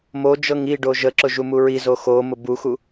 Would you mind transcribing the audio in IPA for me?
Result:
mod͡ʒɤŋ iɖo ʒəǁʊʒumu ɹizo xomʊ buxu

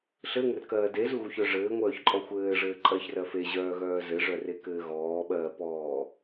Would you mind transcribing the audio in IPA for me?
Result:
ɬɘŋɘrkɜː dezuɣuçœ ʐɘːŋʷœːçǃʼɔ xʷɘːʐɘːǃʼɜçrɜ feʑœːɣœː zɘʐœrekɘː ɣɔːɓɜːpɔː

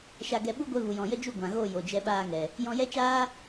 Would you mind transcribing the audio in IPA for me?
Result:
ʃa˧ɡɛ˧ ɓu˦ɡʷɛ˧ vu˨jɔ̃˨jə˦d͡ʒu˦˨ ɡʷã˨ɣo˦˨ jo˨d͡ʒɛ˧ɓaː˧ŋɛ˨ | jɔ̃˧jɛ˦t͡ʃaː˦

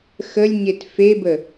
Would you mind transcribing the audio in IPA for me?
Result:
xəlʲɲet febə

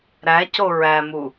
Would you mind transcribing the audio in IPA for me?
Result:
ɾæco ɹæmu

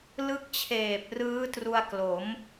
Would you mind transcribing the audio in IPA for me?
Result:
lɯ˥˩k̚t͡ɕʰeː˨˩p̚ rɯː˦˥tru˧a̯klo˩˦m

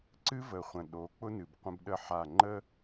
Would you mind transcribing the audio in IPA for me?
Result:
ǀɨ˦ və˨ χʷə̃˨ɗo˨˦k͡pʊ˦nɨ˨b qʷə̃˦bɗə˦˨ ħa˦˨ ŋ͡ǃə˦

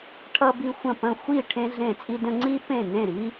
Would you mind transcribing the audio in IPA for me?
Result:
ʈʰʌ˥bi˥ xʷə̃˥˨pə̃˥˨ xʷi˥˨ ʈʰẽ˥ɮẽ˥˨t͡sʼi˥də̃˥ ŋ͡ǀi˥pẽ˥˨ nẽ˥˨ɾi˥

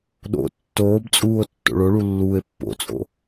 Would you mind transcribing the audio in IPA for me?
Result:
ɗo̰ tːoːbt͡sʼuːo̯ tːo̰ɭoɭu lːuːe̯pːo̰t͡sʼo̰

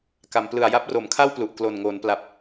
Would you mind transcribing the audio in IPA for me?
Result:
ka˩˦mplɯ˨˩a̯ ja˦˥p̚ro˩˦mkʰa˥˩wplu˨˩ʔ klo˨˩nŋoː˩˦npla˨˩p̚

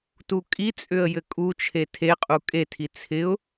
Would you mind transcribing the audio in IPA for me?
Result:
tukʼit͡sʼʏə̯ jɘkʼut͡ʃʰe tʰeqʼu kʼetʰi t͡sʰɪʊ̯

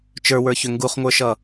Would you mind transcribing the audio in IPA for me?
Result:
t͡ʃə˞wə˞çʏ ŋɡuχŋʷə˞ʃʌ

